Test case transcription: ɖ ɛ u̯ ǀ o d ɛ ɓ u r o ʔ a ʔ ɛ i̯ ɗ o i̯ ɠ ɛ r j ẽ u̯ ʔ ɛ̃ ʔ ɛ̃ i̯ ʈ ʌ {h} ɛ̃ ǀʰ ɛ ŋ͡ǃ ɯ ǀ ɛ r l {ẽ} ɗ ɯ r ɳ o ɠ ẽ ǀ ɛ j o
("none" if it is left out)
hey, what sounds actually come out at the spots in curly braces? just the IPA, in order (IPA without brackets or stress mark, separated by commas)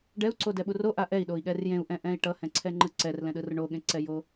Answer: h, ɛ̃